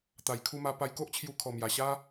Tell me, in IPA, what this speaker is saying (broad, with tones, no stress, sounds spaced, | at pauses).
t̪ a˨˩ j kʰ u˧ m a˧ p a˧ j k o˦ ʔ t͡ɕʰ j u˧ kʰ ɔ˨˩ m j a˨˩ ɕ a˦